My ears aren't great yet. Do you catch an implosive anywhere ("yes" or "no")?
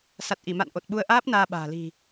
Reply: yes